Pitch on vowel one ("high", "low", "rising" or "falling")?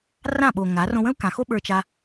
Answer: falling